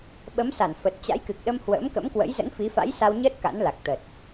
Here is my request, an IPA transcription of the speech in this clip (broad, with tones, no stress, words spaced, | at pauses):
ɓə˨˦msa˧˩n fə˨˩t̚t͡ɕa̰˧˥jkɨ˨˩k̚ɗə˧m hwə̰ː˧˥mkə̰˧˥mkwə̰˧˥j zə̰˧˥nfi˨˦fa̰˧˥j sa˧wɲəː˦˥t̚ ka̰˧˥nla˨˩k̚ t̪ə˨˩t̚